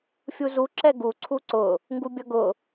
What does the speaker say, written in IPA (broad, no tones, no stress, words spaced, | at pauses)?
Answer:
fʲuzu ǁɛɡu ǀʰuǀʊ | ŋɡubʲʌɡʊ